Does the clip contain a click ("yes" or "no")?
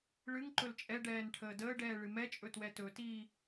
yes